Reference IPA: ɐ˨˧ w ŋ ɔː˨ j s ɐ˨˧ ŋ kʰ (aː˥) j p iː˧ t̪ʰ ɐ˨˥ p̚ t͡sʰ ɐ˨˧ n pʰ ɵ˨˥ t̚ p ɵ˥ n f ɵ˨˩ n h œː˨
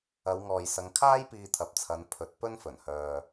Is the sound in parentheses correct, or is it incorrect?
correct